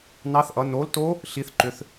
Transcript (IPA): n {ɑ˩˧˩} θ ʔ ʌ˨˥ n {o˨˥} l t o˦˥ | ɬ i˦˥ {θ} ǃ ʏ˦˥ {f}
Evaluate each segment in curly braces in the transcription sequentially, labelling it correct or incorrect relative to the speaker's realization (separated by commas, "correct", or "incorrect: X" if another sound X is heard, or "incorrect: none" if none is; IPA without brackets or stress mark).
incorrect: ɑ˦˥, correct, correct, incorrect: θ